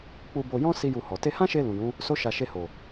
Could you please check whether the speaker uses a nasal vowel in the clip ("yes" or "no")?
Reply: yes